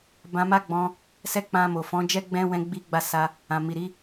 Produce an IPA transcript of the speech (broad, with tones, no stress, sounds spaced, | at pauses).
b ã˧ m a˦ ɡ͡b ɔ̃˧ | s ɛ˦ k͡p ã˧ m o˨ f ɔ̃˨˦ d͡ʒ ɛ˦ ɡ͡b ɛ̃˦ w ɛ̃˦ ɡ͡b i˦ ɡ͡b a˦˨ s a˧ | ã˨ m i˨ ɾ i˨˦